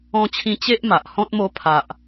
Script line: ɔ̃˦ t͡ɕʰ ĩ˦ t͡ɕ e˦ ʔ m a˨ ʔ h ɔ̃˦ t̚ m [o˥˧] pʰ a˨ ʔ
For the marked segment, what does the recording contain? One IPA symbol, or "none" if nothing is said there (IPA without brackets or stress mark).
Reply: o˧